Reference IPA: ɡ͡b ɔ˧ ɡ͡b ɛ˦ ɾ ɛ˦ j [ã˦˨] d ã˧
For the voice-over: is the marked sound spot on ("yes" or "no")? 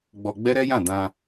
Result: yes